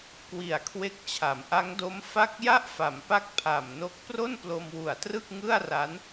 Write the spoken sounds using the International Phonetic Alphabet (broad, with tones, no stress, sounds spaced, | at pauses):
k w i˨˩ a̯ kʰ w e˦˥ k̚ t͡ɕʰ a˩˦ m ʔ a˦˥ ŋ d o˦˥ m f a˥˩ k̚ j a˥˩ ʔ f a˩˦ m p a˦˥ k̚ pʰ a˨˩ m n o˦˥ k̚ p r o˥˩ n p l o˧ m w u˨˩ a̯ t r ɯ˥˩ k̚ ŋ ɯ˥˩ a̯ r a˦˥ n